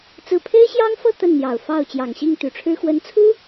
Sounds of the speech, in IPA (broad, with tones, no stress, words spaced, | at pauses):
t͡sɹ̩˥˩ pʰe˥ɪ̯ɕjɑ˥ŋfɤ˥˧ t̪ə˥˩nn̪jɑ˨˩ʊ̯ fɑ˥˩ʊ̯ t͡ɕjɑ˨˩ŋɕi˥˩ŋt̪y˨˩ʈ͡ʂʰɻ̩˥ xwə˧˥nt͡sʰu˥